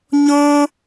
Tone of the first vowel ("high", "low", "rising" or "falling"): high